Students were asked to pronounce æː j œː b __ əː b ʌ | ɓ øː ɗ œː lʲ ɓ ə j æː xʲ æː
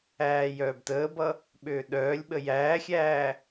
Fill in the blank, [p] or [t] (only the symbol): t